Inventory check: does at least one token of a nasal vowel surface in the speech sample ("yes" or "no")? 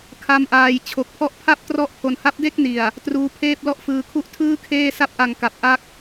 no